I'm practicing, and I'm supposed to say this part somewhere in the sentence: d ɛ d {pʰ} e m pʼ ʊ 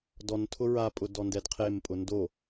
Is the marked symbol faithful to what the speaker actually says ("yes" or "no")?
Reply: no